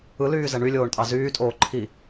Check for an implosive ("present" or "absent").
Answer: absent